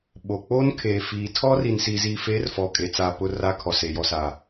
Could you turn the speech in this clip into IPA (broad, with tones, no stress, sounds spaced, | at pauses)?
ɓ o˨ k͡p oː˦ n kʰ eː˨ f iː˨ tʰ ɔ˦ r i˨ n s iː˨ z iː˨ f eː˨˦ r f ɔ˨ kʼ e˨ t͡s a˨ p ʊ˨ r a˦ kʰ ɔ˨ s e˨ j ɔ˨ s a˨